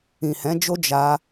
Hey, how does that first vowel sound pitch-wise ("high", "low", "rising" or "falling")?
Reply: low